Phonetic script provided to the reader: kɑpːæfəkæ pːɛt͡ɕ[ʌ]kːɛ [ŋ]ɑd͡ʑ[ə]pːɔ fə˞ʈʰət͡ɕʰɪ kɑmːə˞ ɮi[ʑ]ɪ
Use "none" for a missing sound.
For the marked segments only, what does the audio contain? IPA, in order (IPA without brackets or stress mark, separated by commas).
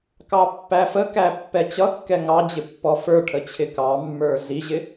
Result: ʌ, ŋ, ɪ, ʑ